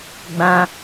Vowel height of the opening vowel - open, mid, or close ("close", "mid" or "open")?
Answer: open